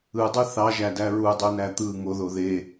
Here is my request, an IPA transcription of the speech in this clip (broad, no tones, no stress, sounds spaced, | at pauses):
ɯ dˤ ɯ θ ɑ ʒ æ d æ ɹ u dˤ u n æ t̪ ɯ ŋ o ð o ð e